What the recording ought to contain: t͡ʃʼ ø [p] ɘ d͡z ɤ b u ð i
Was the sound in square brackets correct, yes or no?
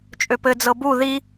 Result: yes